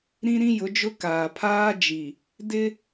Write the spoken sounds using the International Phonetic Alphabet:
ɾ ĩ˦ ɾ ĩ˦ j ʊ˨˦ d͡ʒ ʊ˦ k aː˨ pʰ aː˦ d͡ʒ i˨ | d ɪ˦

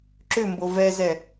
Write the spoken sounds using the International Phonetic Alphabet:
ǁ ʏ m b o v ɛ z ɛ

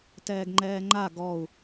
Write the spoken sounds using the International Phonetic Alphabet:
t ɛː ɡ ŋ͡ǃ ɛː ŋ͡ǃ a ɡ ɔ u̯

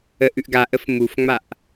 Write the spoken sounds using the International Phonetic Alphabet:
ə ʔ ʉ ʔ ɡ a ʔ ə f m u f ŋ͡m a ʔ

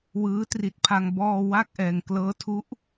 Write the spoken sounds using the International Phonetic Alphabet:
w ɯː˦˥ t r i˨˩ t̚ pʰ a˧ ŋ b ɔː˧ w a˥˩ k̚ ʔ ɛː˧ ŋ k l ɤː˦˥ tʰ u˦˥ ʔ

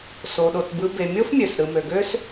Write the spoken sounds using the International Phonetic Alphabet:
s o˨ ɗ o˨ t b ɯ˦ b e˨ mʲ o˥ f mʲ ø˩ s ɾ ɯ˨ m ø˨ ɡ ø˥ s

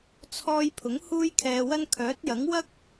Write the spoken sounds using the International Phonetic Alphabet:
t͡sʰ ɔː˧ j pʰ ʊ˨˥ ŋ h uː˥ j kʰ ɛː˧ w ɐ˥ n kʰ œː˨˥ t̚ j ɐ˨˥ ŋ w ɐ˥ k̚

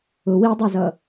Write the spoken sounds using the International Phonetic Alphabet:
ʊ w i dˤ a z ʌ

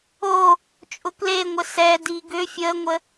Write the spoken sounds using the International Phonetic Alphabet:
o | t͡ʃʼ ʊ k l e ŋʷ ə s ɛ d i ɡ ʏ fʲ ə ŋʷ ə

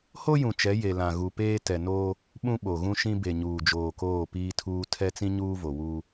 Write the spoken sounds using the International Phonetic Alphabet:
h o˦ j ũ˨ t͡ʃ ɛ˨˦ j e˨ l ã˨ ɣ u˨ p eː˦ t ɛ˨ n oː˦ | ɓ ũ˦ ɓ o˨ ɣ ũ˦ ʃ ĩ˦ b e˨ ɲ uː˨ d͡ʒ oː˨ k oː˦˨ p iː˦ tʰ uː˦ tʰ ɛ˦ t͡s ĩ˦ ɲ uː˦ v o˨ w uː˦

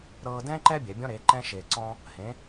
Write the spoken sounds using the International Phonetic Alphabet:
ɾ ɤː˥ d ɛ̃ː˥ ǃ ɛ˥ bʲ ɛ˩˧ bʲ ɔ̃˧ ɾ e˩˧ ǃ ɛ̃˧ ʃ eː˧ ǀ ɔ̃˥ | h ẽ˧˥

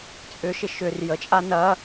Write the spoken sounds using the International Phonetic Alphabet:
t͡sʼ ʏ ʃ ɪ ʃ ʏ r j ə t͡ʃʼ a n ɐ

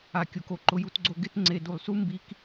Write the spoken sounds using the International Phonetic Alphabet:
a˨ kʲ o˨ k o˨ ǃ ʊ˨ j u˨ t ɡ͡ǀ o˨ ɡ ɪ˦ t ŋ͡ǀ e˨ d u˨ lˠ s u˦ m b i˦ k

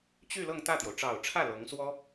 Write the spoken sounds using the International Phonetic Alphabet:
t͡ɕ y˥˧ l ɤ˥˧ ŋ t̪ ä˥˩ t̪ j o˩ ʊ̯ ʈ͡ʂ ɑ˨˩ ʊ̯ ʈ͡ʂʰ ä˥˩ l ɤ˧˥ ŋ s w ɔ˥

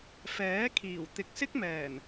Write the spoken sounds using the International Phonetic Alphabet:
f ɛː˨˥ kʰ iː˨˩ w t̪ ɪ˨ k̚ s ɪ˥ k̚ m ɛː˨˩ n

